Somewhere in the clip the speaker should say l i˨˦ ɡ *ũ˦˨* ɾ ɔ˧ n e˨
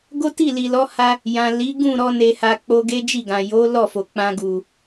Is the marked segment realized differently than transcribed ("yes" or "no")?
no